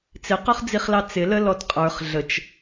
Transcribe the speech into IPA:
t͡s ɪ q ʊ χ d͡z i χ l ɑ t͡s ɪ l ə l ɔ t qʼ ə˞ χ ɮ ə t͡ʃ

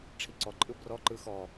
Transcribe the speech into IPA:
ʈ͡ʂʰ i ǀ ɔ ǃʼ ɯ b r ɔ ǃ ɯ x ɔ

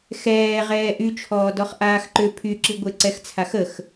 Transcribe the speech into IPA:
x ɛː ʁ ɛː ʔ y t͡ʃʰ ɔː d ɔ χ ʔ aː x ǃ ʏ pʰ y ǁ i ɡʷ e ǀ ɛ x t͡sʰ a x ə x

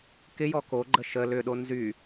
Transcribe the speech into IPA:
k ɪ j ɔ k o ɡ͡ǃ ə ʃ ə l ʏ ɗ o n z y

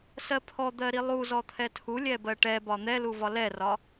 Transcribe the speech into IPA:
s ɜ pʰ ɔ d̪ ɜ ɾ i lˠ u z ɔ t̪ʰ ɛ tʰ u lʲ ɛ b ɜ ʈ ɛ b ɒ n̪ ɛ l u v ɒ l ɛ r ɒ

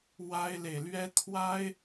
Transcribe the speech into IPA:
w a˦ ɪ̯ l e˨ ɪ̯ l ɥ ɛ˦ t̪ʰ w a˦ ɪ̯

